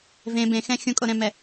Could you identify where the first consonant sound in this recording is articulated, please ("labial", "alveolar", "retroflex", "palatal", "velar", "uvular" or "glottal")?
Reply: labial